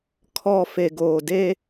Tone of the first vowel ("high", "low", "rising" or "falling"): low